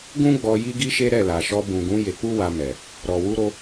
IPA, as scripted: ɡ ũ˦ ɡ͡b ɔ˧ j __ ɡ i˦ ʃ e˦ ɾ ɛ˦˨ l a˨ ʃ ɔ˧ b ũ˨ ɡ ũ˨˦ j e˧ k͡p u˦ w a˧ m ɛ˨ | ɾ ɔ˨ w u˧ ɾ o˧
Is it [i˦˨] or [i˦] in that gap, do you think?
i˦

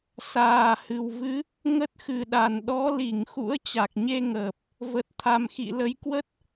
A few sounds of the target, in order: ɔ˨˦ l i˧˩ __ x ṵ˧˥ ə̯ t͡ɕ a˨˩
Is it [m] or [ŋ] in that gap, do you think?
ŋ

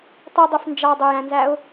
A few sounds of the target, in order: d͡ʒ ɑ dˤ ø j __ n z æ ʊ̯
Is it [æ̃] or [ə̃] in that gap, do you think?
æ̃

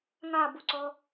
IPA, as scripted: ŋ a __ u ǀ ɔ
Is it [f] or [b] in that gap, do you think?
b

